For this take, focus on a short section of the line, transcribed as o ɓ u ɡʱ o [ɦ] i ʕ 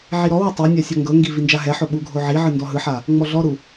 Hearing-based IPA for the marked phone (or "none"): ʕ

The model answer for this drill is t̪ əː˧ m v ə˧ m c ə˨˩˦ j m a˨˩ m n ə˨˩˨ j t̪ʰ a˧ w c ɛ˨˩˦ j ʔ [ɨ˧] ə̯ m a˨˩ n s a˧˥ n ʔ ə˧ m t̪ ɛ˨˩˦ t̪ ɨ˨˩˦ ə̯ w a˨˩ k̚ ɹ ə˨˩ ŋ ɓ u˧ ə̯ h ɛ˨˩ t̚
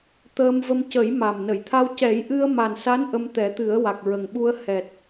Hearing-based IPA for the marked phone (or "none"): ɨ˧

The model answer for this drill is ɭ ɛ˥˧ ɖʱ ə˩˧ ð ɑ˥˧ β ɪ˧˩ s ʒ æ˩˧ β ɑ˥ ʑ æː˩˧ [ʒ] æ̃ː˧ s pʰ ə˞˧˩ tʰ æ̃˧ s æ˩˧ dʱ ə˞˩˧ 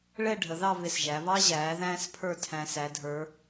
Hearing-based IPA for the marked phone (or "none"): ð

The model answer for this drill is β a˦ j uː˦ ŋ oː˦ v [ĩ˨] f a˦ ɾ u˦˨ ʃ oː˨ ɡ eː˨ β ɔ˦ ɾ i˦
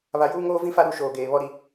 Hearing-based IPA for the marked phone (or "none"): ĩ˦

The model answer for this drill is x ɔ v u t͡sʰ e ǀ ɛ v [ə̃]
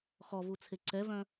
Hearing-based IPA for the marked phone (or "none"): œ̃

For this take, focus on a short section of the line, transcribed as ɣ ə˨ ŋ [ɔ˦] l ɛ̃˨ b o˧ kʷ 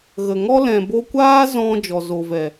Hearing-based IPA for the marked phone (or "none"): ɔ˦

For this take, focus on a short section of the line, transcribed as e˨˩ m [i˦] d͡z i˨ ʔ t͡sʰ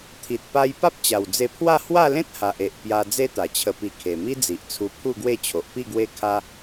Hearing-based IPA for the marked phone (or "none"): i˦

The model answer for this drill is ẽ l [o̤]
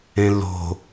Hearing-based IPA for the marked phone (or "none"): o̤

